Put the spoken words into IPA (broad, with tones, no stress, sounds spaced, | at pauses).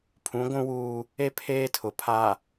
pʰ ũ˨˦ ɡʷ ũ˦ w uː˦ | e˦ pʰ eː˦ tʰ ʊ˨ pʰ a˨